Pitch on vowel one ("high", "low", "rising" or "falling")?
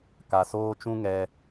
low